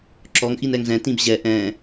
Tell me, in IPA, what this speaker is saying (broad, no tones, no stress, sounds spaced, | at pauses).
ǁ ɔ ŋ ʔ i n ɛ ŋ z ɛ̃ t ĩ b ʑ ɛ ʔ ɛ̃